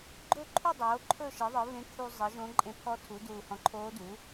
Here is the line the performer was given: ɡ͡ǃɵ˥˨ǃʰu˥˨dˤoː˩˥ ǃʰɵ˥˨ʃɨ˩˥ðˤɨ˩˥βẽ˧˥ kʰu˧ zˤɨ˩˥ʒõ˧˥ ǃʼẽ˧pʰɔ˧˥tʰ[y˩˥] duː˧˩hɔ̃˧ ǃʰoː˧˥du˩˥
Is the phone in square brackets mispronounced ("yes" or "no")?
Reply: yes